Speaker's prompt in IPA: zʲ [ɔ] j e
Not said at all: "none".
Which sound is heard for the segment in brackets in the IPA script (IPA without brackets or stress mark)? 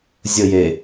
ə